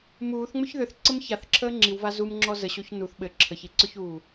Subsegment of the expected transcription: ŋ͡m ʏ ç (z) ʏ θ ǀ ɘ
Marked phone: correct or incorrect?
incorrect